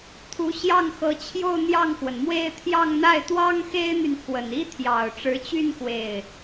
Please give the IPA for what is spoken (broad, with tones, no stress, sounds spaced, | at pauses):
t̪ʰ u˧˥ ɕ j ɑ˥˩ ŋ x ɤ˧˥ t͡ɕʰ j o˥˧ ʊ̯ n̪ j ɑ˥˩ ŋ x w ə˩ n m w e˥˧ ɪ̯ t̪ʰ j ɑ˥˧ ŋ n̪ a˥˩ ɪ̯ t̪ w ɑ˥ ŋ x e˥ ɪ̯ n̪ y˨ n pʰ w ə˨˩ n i˥ t̪ʰ j ɑ˨˩ ʊ̯ ʈ͡ʂ ɻ̩˧˥ t͡ɕ y˥˧ n k w e˥˩ ɪ̯